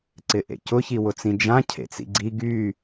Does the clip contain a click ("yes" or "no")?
yes